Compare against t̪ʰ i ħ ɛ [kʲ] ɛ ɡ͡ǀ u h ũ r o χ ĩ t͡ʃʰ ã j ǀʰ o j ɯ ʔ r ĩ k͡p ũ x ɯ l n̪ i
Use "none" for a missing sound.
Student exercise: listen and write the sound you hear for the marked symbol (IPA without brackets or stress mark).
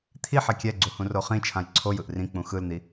kʲ